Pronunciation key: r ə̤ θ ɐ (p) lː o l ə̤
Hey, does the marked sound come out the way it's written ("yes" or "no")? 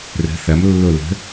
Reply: no